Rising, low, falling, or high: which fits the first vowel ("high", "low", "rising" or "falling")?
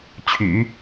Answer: low